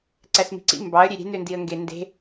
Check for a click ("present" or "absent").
present